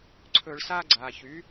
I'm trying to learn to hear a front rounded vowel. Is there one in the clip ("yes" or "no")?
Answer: yes